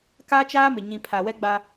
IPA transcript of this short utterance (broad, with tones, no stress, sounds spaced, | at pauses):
k a˦ t͡ʃ aː˦ m ɪ˨ ɲ ĩ˨ pʰ a˨ w ɛ˦ ɡ͡b a˦